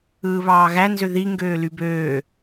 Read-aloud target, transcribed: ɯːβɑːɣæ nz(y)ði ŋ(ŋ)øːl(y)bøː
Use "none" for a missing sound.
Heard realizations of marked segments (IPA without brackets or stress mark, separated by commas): ø, ɡ, y